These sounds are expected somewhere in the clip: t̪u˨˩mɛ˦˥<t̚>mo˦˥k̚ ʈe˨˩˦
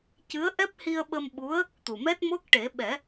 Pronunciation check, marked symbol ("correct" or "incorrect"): correct